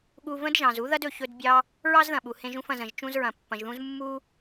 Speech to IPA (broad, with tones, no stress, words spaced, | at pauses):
ɠu˧və̃˥dʒɑ̃˩zu˥ ðɐ˥dɵ˩ çɵ˧dbʲɑ˧ | ɹɑ˥zðɐ̃˩ɓu˩ hẽ˧ʒũ˧fɐ̃˩z ə̃˩ʒ t͡ʃũ˧zɹɐ̃˩ pːɐ̃˩ʒðũ˧z mːu˧